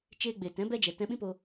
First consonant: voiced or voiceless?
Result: voiceless